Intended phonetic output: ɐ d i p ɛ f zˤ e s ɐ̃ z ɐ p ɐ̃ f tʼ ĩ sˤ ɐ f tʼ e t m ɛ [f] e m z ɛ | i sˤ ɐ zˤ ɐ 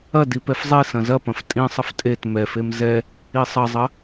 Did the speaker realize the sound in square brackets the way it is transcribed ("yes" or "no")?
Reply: yes